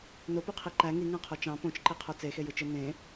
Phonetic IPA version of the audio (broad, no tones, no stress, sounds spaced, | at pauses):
n o p y qʰ i ǃ æ ŋ i ŋ æ̃ qʰ o t͡ʃ ɑ̃ p õ t͡ʃ ǃ i qʰ o t͡s e x e j ɯ t͡ʃ ɯ n ẽ